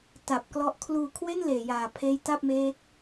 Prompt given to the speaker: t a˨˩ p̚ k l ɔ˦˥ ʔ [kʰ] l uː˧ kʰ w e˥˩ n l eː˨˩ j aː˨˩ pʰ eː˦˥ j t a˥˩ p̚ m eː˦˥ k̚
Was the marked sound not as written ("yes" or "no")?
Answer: no